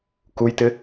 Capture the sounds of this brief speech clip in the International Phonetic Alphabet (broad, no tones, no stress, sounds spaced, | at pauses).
k u j t ɪ